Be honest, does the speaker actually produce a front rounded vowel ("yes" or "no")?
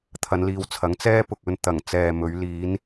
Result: no